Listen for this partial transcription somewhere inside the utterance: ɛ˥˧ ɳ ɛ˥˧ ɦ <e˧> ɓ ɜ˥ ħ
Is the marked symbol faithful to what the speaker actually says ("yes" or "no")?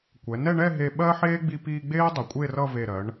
yes